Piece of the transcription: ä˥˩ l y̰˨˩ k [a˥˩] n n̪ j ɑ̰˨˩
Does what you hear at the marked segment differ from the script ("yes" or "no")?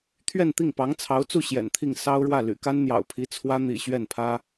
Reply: yes